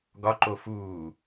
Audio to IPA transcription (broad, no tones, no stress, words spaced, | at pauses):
ɡɒǃo fuː